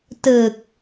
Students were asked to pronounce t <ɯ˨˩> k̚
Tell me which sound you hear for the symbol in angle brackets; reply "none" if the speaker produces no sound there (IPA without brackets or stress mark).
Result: ɯ˨˩